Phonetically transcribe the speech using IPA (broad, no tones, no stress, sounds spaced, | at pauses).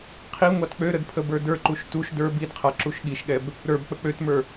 qʰ i ŋʷ ɑ t k͡p ø ɾ ə d pʰ ə b ə˞ d ə˞ ǃ u ʃ t u ʃ d ə˞ b i d qʰ a ǁ u ʃ ɠ i ʃ ɠ ɛ b | ɾ ə˞ b k͡p ə k͡p ø t m ə˞